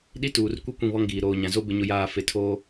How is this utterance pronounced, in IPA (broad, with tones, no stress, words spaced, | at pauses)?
ɗi˦tuː˨r kʷi˦ kʷĩ˦˨βɔ˦ŋɡiː˨ ɾoː˨ɲã˨zo˦ bɪ˦ɲʊ˦jaː˦ fe˨tʰoː˦